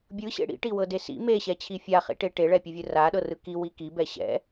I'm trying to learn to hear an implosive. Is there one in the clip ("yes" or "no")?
yes